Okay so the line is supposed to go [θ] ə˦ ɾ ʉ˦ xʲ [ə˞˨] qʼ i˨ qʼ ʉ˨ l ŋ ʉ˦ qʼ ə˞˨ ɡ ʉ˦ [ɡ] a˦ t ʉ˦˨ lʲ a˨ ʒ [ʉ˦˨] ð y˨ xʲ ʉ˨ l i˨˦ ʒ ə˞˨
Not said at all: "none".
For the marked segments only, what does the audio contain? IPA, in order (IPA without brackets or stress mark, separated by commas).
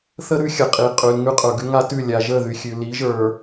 θ, ə˨, ŋ, ə˦˨